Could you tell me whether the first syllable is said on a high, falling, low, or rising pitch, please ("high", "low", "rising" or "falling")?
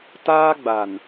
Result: high